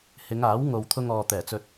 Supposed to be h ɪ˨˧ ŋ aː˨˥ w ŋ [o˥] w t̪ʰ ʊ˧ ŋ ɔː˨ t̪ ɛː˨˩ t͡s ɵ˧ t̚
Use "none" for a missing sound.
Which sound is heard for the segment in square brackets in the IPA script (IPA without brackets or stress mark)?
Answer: o˨